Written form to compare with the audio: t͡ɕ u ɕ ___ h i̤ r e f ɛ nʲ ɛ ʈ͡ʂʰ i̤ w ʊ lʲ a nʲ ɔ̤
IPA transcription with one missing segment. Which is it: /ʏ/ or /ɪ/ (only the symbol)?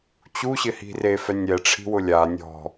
ɪ